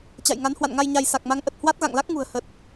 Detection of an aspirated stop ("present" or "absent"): absent